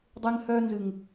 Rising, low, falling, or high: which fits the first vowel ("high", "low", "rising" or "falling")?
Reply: high